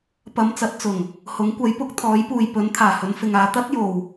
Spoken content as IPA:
p ɐ˨˧ m t͡s ɐ˨˥ t̚ t͡s ʊ˨˩ ŋ | h ʊ˨˥ ŋ kʷ ɐ˨˥ j p ʊ˧ k̚ t̪ʰ ɔː˨˥ j p uː˨ j p ɵ˨˥ n t̪ʰ aː˨˩ h ɵ˨˧ n f ɪ˨ ŋ aː˧ t̪ ɐ˥ t̚ j o˨ w

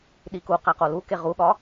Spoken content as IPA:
ɗ i k u q æ q o l u k e ʁ u ɠ ɒ

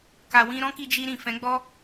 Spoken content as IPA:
k a˧ w ĩ˦ ɾ ɔ̃˦ k i˧ d͡ʒ i˧ ɾ ĩ˨ f ɛ̃˨˦ ɡ͡b ɔ˦

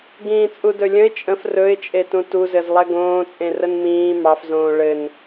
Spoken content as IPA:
ɡ ĩː t͡sʼ u d ɵ lʲ ə̃ ɪ̯ t͡ʃʼ ə̃ f r ɵ ɪ̯ t͡ʃʼ e t ũ t u z ɘ z lˠ ɛ ɡ õː t͡sʼ ẽ r ə n m ĩː m ɑ f z õː ɭ ɘ n

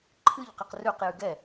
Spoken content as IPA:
ǃʰ ɨ ʎ q ɨ q r ʉ q j ʉ ɡ ɛ

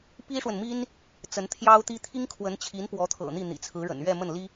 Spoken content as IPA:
p i˥ ʂ w ə˨ n m i˥ n | t͡s ə˧˥ n t̪ʰ j ɑ˥ ʊ̯ t̪ i˥ t̪ʰ i˥ ŋ kʰ w ə˧˥ n t͡ɕʰ i˧˥ n p w ɔ˧˥ t̪ʰ ɤ̰˨˩ n̪ i˥˩ n̪ ḭ˨˩ t͡sʰ ɹ̩˧˥ ɻ ə̰˨˩ n ɥ ɛ˥˧ m ə˥˩ n l i˥

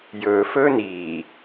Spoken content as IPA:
j ɵː f ɵː n iː

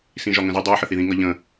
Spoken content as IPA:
s ĩ ʒ ɒ ŋ ə̃ z i dˤ u ħ ə θ i ð ĩ ŋ ʌ ʎ ə̃

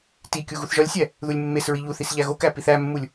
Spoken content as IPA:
t i kʲ u ɣ u θ ʒ ɒ lʲ sʲ æ | ð u lʲ mː e s ɹ i ʎ u θ i s ʎ æ ɣ o k æ p i θ æ mː u lʲ

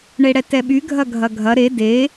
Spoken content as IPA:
ɳ e ɽ ɛ t ɛ ɓ y ɡʱ ɐ ɡʱ ɐ ɡʱ ɐ ɾ e d e

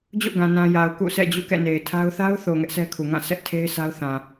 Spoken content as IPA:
d͡ʑ o̰˦˨ ɡ ã˨ n ã˨ j a˨ ʊ̯ k ṵ˦˨ s ɛ̰˦˨ d͡ʑ ṵ˦˨ k ɛ̰˦˨ n e˨ ɪ̯ tʰ a˦ ʊ̯ θ a˦ ʊ̯ θ o˨ ŋ ɛ˦ ʔ sʰ ɛ˦ kʰ u˨ ŋ ã˦˨ s ɛ˦ ʔ tʰ e˦ ɪ̯ s a˦ ʊ̯ θ ã˨

